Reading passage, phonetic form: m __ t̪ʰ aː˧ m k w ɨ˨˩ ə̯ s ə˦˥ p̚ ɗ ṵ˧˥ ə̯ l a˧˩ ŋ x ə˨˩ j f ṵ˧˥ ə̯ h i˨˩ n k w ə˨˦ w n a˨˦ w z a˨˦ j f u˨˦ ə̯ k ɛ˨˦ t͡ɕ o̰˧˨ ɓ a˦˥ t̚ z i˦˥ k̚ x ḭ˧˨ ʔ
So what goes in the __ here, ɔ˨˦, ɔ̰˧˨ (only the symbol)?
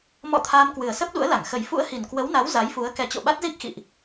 ɔ̰˧˨